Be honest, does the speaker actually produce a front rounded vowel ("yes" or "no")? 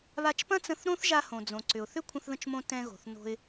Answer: yes